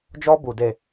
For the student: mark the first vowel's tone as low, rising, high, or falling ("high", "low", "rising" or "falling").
high